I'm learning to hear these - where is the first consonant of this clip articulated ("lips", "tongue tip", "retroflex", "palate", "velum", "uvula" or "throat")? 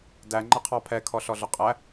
tongue tip